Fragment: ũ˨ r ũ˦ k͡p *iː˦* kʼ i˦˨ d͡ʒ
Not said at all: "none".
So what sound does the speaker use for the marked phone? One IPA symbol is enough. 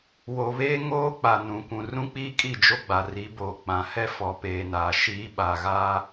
iː˦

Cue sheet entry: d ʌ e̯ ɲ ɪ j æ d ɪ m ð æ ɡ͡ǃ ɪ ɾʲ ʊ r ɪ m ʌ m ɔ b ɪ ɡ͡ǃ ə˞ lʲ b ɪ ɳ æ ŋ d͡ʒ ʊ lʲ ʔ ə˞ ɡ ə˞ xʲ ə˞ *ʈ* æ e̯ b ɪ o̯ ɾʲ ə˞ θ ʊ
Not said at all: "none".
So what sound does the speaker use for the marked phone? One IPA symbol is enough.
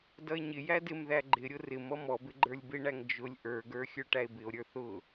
ʈ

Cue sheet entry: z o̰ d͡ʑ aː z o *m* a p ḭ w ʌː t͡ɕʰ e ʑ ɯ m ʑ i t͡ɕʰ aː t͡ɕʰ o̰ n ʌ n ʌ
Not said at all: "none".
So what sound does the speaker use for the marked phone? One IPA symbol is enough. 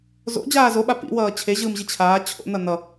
ɓ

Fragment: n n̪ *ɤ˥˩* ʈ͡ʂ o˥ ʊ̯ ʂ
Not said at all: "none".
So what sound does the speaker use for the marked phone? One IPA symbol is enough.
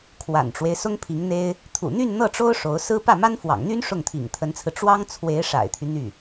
ɤ˥˩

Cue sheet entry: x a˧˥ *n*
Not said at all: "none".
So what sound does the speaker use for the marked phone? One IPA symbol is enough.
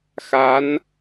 n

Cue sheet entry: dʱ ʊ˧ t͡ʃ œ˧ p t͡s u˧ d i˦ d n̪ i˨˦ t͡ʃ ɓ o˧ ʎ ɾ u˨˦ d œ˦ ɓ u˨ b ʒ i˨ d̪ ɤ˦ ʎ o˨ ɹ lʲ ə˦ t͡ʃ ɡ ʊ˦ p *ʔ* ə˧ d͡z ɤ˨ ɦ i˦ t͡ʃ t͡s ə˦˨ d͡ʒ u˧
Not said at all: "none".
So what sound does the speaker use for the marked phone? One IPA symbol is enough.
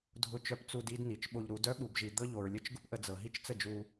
ʔ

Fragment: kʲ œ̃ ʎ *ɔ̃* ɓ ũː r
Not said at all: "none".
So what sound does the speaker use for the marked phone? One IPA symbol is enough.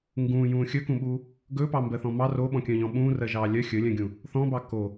ɔ̃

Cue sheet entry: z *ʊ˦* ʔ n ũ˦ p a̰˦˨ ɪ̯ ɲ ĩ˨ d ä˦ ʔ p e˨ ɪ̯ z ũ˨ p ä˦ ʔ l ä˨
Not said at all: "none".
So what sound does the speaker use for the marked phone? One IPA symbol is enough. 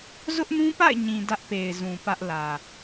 ʊ˦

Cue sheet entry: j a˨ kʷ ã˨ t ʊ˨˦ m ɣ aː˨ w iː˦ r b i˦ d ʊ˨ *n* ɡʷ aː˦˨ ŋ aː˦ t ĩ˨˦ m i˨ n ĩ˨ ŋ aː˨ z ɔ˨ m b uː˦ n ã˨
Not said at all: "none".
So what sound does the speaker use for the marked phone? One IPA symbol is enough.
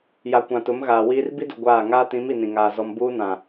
none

